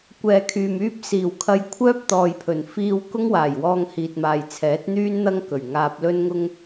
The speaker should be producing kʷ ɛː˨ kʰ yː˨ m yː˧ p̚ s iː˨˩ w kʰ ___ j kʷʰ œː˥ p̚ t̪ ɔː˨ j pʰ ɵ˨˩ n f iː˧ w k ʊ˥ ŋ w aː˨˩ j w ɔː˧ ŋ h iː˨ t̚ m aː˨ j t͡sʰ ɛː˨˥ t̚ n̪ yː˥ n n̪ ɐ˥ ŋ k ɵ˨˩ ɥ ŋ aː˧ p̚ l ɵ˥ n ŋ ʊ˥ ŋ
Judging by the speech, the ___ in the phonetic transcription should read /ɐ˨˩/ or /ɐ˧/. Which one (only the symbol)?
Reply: ɐ˧